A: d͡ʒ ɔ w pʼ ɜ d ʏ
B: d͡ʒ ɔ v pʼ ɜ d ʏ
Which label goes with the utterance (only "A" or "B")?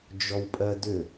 A